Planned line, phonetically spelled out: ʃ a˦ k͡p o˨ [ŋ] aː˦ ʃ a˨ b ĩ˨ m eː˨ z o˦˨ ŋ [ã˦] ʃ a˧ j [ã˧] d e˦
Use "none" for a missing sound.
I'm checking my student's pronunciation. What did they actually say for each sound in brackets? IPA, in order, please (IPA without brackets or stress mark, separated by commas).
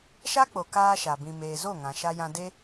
k, ã˨, ã˧